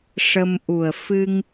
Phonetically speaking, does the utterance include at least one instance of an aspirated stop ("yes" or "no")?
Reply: no